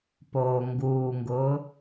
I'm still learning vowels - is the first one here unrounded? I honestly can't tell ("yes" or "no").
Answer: no